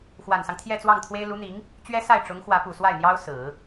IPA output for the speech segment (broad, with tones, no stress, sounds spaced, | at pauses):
x w a˨˩ n s ɑ˦ ŋ t̪ʰ j ɛ˥˧ t͡s w ɑ˥˩ ŋ t̪ʰ w e˥ ɪ̯ l u˧˥ n̪ i˧˥ ŋ | t͡ɕ ɥ ɛ˥ s a˥˩ ɪ̯ ʈ͡ʂ ʊ˧˥ ŋ x w ä˧˥ p u˨˩ s w a˥˩ ɪ̯ n̪ j ɑ˥ ʊ̯ s ɹ̩˨˩˦